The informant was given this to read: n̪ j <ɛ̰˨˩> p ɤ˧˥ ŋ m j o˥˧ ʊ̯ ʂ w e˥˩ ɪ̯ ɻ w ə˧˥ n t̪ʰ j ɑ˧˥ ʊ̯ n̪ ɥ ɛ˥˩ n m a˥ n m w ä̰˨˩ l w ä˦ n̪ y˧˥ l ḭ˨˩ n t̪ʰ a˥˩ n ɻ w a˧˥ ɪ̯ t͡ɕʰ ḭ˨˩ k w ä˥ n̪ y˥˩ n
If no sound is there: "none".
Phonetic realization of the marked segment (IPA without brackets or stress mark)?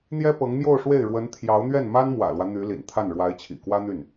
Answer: ɛ˥